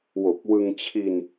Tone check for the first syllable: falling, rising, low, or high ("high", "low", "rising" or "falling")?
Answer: low